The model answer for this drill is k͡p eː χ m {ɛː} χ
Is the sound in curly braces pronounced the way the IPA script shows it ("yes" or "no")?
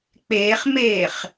no